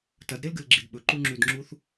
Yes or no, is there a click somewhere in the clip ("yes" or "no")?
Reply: yes